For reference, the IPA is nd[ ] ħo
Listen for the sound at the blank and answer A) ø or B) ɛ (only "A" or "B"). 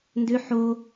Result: A